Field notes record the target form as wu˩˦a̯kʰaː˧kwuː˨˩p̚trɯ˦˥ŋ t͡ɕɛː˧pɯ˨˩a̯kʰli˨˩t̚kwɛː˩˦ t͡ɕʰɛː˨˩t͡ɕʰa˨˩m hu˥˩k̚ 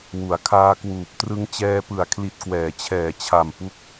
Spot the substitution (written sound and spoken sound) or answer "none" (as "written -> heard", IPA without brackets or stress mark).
h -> p